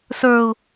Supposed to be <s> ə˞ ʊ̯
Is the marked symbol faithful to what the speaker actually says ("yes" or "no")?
yes